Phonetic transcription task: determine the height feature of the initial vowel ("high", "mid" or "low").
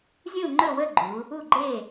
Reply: high